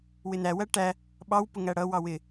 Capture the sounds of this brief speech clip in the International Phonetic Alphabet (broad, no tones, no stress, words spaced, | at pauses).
wɪnæwæ ʈæ | ɓɑwpʊ ŋæɽʌwɑ wɪ